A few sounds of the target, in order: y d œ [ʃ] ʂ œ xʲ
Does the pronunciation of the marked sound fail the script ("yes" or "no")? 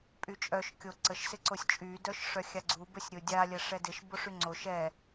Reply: no